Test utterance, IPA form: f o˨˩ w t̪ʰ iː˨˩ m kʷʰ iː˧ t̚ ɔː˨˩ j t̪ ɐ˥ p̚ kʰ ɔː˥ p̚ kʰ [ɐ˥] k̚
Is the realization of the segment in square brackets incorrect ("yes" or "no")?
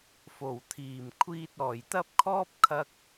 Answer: yes